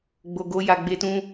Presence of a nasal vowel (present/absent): present